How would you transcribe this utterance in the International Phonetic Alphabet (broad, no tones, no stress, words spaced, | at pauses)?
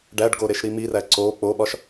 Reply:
ɖæɖɡo ɾeʃɾimiræ ǀo k͡poɓɒʃ